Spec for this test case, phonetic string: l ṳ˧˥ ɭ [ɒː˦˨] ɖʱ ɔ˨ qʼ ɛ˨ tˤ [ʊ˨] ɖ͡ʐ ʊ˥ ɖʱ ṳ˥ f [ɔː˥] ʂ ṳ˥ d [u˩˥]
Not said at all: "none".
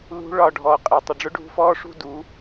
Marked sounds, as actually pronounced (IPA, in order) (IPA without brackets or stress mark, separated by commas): ɒ˦˨, ʊ˨, ɔː˥, u˩˥